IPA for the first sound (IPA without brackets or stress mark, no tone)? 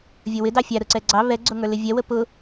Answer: vʲ